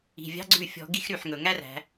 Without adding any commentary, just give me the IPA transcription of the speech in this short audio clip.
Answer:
i̤˩˧˩vʲɑ̤˦˥ɡ͡ǀʉ˦˨ fʲɔ̤˧˩˧ɡi˦˥xɾy˩˧˩ħ ŋɵ˩ŋæ˦˥ræ̤˩˧

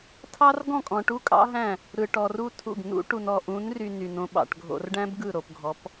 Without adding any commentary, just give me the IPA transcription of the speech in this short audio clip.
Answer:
tʰɑ˦rɡɔ̃˦˨kʼɔ̃˨ ʈu˦kʼɑ̰˦ ɦæ̃˦˨ | ɾɯ˨ʈɔ˨ru˦tʰṵ˦˨ɡ nṵ˦ʈu˨nɔ˨ ʔũ˨˦nry˨ ny˨nõ˦ɓɑ̰˨ʈ ɡʱo̰˨rɖæ̃˦b ɡɯ˦˨ɾo˨pɡʱɔ˨˦p

